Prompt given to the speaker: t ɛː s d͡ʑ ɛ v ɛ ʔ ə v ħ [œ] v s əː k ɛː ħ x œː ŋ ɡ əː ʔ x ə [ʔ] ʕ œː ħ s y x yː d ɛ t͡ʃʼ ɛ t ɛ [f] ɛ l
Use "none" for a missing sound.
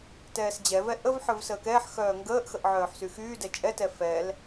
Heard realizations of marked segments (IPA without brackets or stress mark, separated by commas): œ, ʔ, f